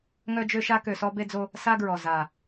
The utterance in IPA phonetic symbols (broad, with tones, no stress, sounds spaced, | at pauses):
ŋ œ˦ d͡ʒ ø˦ ʃ a˦ k ø˨ s ɔ˦ b e˦ d͡z o˦ | s a˦ ɡ ɹ ɔ˨ z a˨